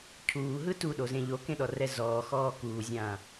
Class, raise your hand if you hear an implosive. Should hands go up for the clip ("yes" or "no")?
yes